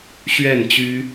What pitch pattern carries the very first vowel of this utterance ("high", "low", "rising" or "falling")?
falling